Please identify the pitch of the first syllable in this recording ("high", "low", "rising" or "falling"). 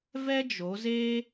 high